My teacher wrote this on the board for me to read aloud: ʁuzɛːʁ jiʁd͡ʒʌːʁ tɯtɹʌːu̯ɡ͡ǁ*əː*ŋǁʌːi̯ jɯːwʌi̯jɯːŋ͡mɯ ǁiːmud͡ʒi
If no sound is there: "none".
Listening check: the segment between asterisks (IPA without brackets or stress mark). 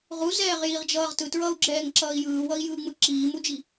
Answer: ɛː